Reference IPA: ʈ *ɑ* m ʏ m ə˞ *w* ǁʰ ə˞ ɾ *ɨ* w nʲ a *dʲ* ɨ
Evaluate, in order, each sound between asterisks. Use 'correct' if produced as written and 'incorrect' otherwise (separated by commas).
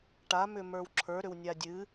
incorrect, correct, incorrect, correct